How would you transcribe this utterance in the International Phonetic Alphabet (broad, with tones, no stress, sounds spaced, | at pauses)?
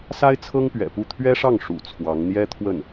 s a˥ ɪ̯ t͡sʰ ɤ˥ ŋ p ɥ ɛ̰˨˩ p u˥˩ t̪ʰ ɥ ɛ˥ ʂ ɑ˥˩ ŋ ʂ ṵ˨˩ t͡sʰ w ɑ˧˥ ŋ n̪ j ɛ˥ t̪ʰ w ə˥˩ n